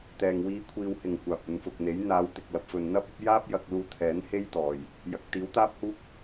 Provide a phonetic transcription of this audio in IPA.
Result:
t̪ ɛː˨ ŋ w iː˨˥ kʷʰ iː˨ w h ɪ˨˩ ŋ kʷ aː˨ p̚ ɵ˨˧ n f ʊ˨ k̚ n̪ e˨˥ j n̪ aː˨˧ w t̪ ɪ˨ k̚ l ɐ˨ p̚ f ɵ˨ n n̪ ɐ˥ p̚ ɐ˥ p̚ j aː˥ p̚ j ɐ˧ k̚ l uː˧ t̪ʰ ɛː˨˥ n h e˥ j t̪ ɔː˨˩ j | j ɐ˨ k̚ t̪ iː˨˥ w t̪ aː˥ p̚ h uː˥ k̚

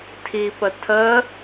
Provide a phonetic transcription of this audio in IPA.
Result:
tʰ i p ə tʰ ə

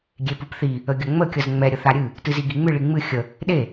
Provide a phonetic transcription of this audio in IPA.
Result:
ɡʲ e p ɨ p θ i | ə ɡʲ ə ŋ͡m ə kʲ ə z ŋ͡m ɛ ɾʲ ə θ a ɾʲ ɨ | t ɨ z i ɡ i ŋ͡m ɨ ɭ i ŋ͡m ɨ xʲ ə | ɗ e

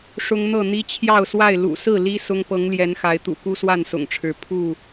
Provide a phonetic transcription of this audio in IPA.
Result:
ʂ ʊ˦ ŋ n̪ ɤ˥˨ n̪ i˦ t͡ɕʰ j ɑ˥˨ ʊ̯ s w a˥˨ ɪ̯ l ṵ˨˩ s ɹ̩˥˨ l i˦ s ʊ˦ ŋ p ɤ˨˦ ŋ l j ɛ˨˦ n x a˨˦ ɪ̯ t̪ ṵ˨˩ k u˦ s w a˥˨ n s ʊ̰˨˩ ŋ ʈ͡ʂʰ ɻ̩˨˦ pʰ u˥˨

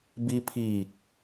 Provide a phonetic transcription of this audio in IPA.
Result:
b i˧ pʰ iː˧˩ k̚

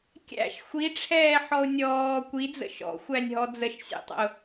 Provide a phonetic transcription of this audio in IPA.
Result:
kʲ æ̰ ʃ xʷ i ʈ͡ʂʰ ɛː ħ ɔ ʊ̯ nʲ ɔː kʷ i d͡z ə̰ ʃ ɔ̰ xʷ æ nʲ ɦ ɔ d͡z ə ʃ sʲ ḛ tˤ ə̰ ʊ̯

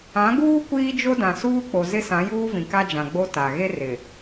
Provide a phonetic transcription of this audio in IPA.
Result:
ã˨˦ ɡ uː˦ kʷ iː˦ d͡ʒ o˦ d ã˨ s uː˦ k͡p o˨ z ɪ˦ s ã˨˦ j uː˦ v ĩ˨ k a˦ d͡ʒ ã˨ ɡ͡b o˦ t a˨ ɣ e˦ r ɪ˨

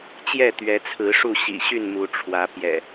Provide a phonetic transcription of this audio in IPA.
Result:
t͡ɕ j ɛ˥˨ t̪ ɥ ɛ˨˦ t͡sʰ ɹ̩˨˦ ʂ u˥˨ ɕ ḭ˨˩ ɕ y˥˨ n m u˨˦ ʈ͡ʂʰ w ä˨˦ p j ɛ̰˨˩

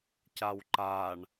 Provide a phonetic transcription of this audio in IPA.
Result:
c a w ǃ a ɳ

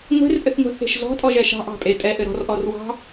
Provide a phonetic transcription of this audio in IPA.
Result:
ŋʷ e̤ r pʼ ɘ θ ŋʷ ɛ̤ θ e̤ ʃ z ɔ̤ tʼ ɔ ʒ ɛ ʃ ɑ̤ ʔ ɑ̤ pʼ e tʼ ɛ ʔ ɘ ɾ ɔ̤ r ʔ ɔ r w ɑ̤

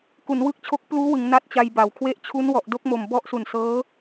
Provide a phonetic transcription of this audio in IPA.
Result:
k u˩˦ n w ɯ˦˥ k̚ t͡ɕʰ o˦˥ k̚ p l uː˦˥ w ɯ˩˦ ŋ n a˦˥ t̚ t͡ɕ a˧ j b a˨˩ w kʰ w e˦˥ ʔ t͡ɕʰ u˦˥ n w ɔ˨˩ ʔ d o˦˥ k̚ m o˨˩ m b ɔ˦˥ ʔ s u˨˩ n s ɤː˦˥

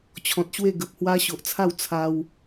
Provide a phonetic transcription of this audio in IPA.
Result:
t͡ɕʰ ɔ̃˨ t̚ ɕ w e˥˧ ɡ ə˨ p̚ h w a˦ ɕ o˨ ʔ t͡sʰ a˥˧ w t͡sʰ a˧ w

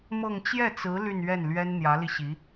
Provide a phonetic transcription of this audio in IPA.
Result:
m ɤ˥˧ ŋ t͡ɕ j ɛ˥˩ t͡s ɹ̩˧˥ l y˥˧ n ɥ ɛ˥˩ n l ɥ ɛ˥ n n̪ j ä˧˥ l i˧ ɕ i˧˥

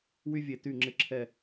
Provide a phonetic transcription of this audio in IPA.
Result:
w y˦ vʲ e˨ t y˦˨ ŋ͡ǁ ɪ˦˨ ǁʰ ɛ˦˨

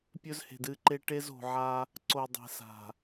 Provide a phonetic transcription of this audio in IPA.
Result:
pʲ ɵ˦ z h e̤˨ d ɨ˦˨ ǃ e˦ ʈ e˦ z o̤˨ ʕ a˦ | ǀ o˨ dˤ e̤˨ s a̤˨

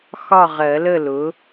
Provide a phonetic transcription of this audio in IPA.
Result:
x ɒ˥˨ ʁ ɜ˨˩˦ l ə˥˨ l ʊ˩˥

